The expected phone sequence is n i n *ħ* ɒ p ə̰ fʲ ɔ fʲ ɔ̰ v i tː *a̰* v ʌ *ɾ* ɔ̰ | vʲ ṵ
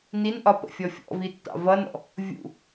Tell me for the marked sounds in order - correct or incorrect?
incorrect, incorrect, incorrect

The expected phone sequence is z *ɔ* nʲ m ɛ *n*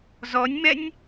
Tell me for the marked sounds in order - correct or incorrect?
correct, incorrect

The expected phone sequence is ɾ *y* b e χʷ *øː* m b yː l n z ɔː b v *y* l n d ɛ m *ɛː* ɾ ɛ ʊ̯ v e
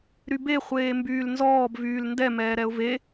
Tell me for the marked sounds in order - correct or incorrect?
correct, incorrect, incorrect, correct

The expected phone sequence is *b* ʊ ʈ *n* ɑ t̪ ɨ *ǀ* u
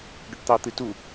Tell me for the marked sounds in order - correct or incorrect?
incorrect, incorrect, incorrect

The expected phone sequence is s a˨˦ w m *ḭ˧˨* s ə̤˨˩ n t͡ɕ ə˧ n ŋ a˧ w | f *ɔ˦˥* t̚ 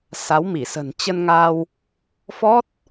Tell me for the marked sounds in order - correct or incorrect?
incorrect, correct

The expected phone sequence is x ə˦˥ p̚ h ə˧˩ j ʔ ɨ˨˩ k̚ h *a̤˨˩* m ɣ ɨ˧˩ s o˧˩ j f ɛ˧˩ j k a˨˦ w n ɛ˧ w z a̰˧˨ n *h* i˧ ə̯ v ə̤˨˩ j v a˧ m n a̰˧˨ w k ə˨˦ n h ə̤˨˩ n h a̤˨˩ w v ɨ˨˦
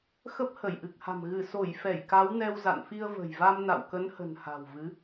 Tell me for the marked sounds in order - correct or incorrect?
correct, incorrect

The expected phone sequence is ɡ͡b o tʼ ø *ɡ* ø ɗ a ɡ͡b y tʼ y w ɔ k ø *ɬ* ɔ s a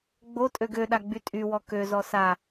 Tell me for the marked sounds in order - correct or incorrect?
correct, incorrect

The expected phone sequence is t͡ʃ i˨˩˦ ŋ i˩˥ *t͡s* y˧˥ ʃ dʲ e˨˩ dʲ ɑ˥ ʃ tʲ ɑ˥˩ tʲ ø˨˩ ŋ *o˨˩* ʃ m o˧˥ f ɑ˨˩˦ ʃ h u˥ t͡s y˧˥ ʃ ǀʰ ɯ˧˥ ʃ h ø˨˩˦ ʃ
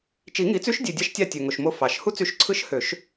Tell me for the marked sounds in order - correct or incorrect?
correct, correct

